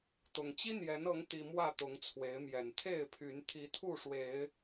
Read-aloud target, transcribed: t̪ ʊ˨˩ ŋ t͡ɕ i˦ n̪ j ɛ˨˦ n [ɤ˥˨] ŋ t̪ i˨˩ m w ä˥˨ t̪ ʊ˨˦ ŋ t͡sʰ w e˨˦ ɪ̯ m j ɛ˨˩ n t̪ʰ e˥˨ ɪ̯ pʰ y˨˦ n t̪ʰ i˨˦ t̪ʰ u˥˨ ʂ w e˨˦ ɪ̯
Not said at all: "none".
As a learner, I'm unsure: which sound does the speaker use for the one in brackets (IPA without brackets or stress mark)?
ɤ˨˦